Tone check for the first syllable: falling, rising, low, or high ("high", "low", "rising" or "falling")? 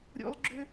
high